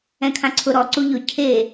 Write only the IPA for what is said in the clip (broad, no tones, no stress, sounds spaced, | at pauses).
ɛ̃ kʰ ã ǀʰ ʊ ɾ ɔ ǀ u ʎ ʊ cʰ e